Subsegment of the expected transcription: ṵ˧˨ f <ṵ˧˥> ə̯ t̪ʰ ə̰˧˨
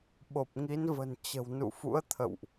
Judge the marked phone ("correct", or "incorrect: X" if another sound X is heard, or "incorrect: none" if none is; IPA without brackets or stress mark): correct